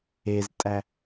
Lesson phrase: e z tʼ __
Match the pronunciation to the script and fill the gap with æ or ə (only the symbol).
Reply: æ